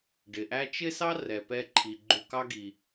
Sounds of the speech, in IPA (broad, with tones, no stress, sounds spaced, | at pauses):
ɖ ɪ˩ ʔ æ˦ t͡ʃ ɪ˥ s ɑ˥ r ɛ˨ p ɛ˦ ǃʰ i˩ ɡ͡ǃ u˨ k ɑ˦ ɡ i˩